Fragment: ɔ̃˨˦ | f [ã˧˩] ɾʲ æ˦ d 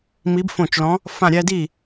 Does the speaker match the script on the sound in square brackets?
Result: yes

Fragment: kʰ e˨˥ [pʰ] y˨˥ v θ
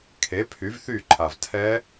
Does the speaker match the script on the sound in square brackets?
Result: yes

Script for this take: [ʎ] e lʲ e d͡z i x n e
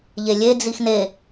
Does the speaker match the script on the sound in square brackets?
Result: yes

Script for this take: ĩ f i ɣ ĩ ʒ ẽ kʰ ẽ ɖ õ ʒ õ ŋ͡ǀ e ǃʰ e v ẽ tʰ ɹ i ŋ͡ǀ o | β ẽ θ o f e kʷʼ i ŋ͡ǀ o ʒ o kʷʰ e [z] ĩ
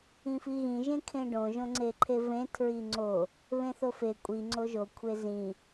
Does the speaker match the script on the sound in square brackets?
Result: yes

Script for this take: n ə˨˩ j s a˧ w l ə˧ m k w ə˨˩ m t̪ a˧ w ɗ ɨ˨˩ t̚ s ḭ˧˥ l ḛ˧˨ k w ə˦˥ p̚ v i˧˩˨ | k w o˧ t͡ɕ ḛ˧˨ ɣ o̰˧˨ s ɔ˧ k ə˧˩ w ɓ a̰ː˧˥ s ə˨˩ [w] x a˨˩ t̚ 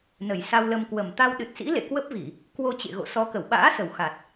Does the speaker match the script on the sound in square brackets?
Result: yes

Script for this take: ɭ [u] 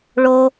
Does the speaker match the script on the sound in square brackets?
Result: no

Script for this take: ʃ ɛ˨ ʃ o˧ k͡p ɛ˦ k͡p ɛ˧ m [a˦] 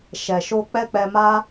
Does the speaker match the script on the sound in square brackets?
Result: yes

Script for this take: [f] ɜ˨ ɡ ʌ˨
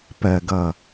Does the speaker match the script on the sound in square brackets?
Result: no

